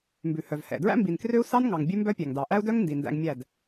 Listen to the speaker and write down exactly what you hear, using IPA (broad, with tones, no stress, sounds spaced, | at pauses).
m b ʉ˨ h œ˨ v h ɛ̰˨ d ɹ æ̰˦ m b i˨ n k r ø˦ u̯ s ɑ˦ n ŋ ɑ˨ ŋ bʲ ʉ˦ m b œ˦ pʲ æ˨ ŋ d ɑ˨ ʔ æ˦ u̯ d œ˦ ŋ n d i˨ n d æ̰˧ ŋ mʲ æ˦˨ d